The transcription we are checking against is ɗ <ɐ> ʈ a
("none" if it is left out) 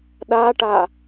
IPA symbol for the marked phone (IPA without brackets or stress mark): a